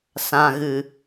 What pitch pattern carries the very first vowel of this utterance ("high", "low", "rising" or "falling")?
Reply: low